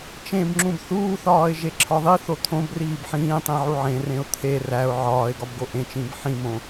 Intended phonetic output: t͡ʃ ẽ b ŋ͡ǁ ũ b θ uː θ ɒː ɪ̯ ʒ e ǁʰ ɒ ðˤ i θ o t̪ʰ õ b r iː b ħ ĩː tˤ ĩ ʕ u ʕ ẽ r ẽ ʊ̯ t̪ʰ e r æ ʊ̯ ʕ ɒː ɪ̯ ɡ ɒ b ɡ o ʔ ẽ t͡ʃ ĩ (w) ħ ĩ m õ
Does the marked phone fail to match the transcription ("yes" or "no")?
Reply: yes